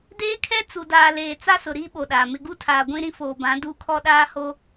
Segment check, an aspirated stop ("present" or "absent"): present